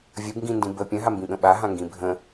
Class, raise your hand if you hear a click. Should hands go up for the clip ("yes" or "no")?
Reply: no